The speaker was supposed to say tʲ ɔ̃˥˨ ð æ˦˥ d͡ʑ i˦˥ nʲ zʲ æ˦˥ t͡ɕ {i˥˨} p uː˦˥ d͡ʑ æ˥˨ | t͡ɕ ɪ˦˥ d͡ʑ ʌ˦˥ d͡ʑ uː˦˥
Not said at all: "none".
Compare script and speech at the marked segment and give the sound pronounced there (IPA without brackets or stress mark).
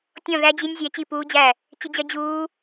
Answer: i˥˨